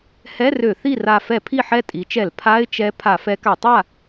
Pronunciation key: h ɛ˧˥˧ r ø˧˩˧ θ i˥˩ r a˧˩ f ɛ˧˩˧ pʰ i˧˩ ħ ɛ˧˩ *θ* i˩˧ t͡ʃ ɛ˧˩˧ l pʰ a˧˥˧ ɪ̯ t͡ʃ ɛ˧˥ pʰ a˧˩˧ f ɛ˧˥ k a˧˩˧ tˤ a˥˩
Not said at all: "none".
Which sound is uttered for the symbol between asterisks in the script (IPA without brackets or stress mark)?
tʼ